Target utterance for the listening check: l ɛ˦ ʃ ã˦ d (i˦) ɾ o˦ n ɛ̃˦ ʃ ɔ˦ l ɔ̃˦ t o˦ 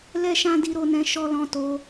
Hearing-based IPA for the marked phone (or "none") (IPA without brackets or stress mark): i˦